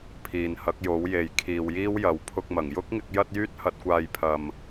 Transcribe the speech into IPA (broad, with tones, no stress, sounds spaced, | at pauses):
pʰ iː˨ n h ɐ˨˥ k̚ j o˨˥ w j e˨ j kʰ iː˨ w j iː˥ w j ɐ˨˧ w pʰ ʊ˧ k̚ m ɐ˨˩ ŋ j ʊ˥ k̚ ŋ ɪ˧ k̚ j ɐ˧ t̚ j yː˧ t̚ h ɐ˨ t̚ kʷ aː˨ j pʰ ɐ˨ m